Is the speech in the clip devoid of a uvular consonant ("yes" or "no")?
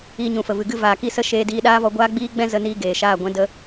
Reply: yes